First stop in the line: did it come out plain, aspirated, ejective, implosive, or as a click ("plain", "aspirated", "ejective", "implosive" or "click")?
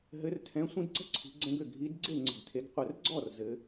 aspirated